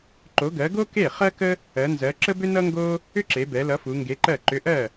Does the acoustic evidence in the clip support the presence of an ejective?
no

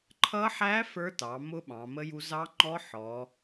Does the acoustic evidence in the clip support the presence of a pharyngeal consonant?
yes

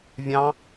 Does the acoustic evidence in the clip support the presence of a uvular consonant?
no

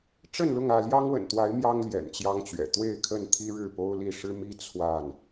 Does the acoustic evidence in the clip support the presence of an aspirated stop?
yes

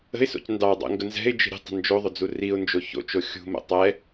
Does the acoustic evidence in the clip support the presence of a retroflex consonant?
no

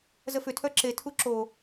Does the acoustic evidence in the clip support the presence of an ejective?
no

